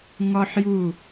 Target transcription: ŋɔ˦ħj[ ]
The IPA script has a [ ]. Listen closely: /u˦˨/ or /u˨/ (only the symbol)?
u˦˨